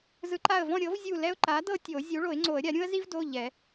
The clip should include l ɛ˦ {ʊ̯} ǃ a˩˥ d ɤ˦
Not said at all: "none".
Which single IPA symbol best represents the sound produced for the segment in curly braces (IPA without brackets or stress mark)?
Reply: ʊ̯